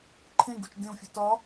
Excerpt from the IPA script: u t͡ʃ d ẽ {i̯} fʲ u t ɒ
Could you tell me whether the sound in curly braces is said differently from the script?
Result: yes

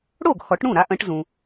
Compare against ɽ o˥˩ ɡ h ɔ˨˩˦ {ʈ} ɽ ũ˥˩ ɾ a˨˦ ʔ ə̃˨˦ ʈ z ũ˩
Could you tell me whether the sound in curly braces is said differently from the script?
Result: no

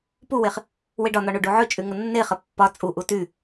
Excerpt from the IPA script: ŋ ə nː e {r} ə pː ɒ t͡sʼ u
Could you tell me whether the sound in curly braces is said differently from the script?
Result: yes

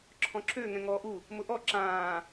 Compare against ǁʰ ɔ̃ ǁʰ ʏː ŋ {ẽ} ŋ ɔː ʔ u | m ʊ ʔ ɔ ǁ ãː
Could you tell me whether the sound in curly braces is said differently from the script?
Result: yes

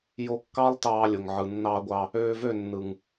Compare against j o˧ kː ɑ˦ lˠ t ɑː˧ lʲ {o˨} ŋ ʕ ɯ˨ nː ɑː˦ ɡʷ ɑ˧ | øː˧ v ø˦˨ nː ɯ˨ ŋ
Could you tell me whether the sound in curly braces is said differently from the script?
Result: no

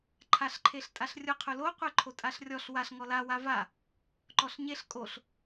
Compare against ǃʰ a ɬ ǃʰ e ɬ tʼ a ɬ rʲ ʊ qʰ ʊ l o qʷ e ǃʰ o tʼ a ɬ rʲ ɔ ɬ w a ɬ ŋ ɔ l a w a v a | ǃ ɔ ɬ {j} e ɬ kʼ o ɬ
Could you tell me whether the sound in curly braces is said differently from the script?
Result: yes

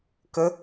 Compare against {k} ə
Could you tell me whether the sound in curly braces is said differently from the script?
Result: no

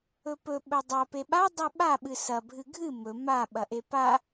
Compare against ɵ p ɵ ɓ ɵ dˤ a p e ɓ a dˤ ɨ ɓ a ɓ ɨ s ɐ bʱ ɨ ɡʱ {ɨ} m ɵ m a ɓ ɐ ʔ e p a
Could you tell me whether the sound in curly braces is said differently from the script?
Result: no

